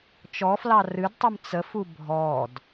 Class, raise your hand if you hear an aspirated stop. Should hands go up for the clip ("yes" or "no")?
no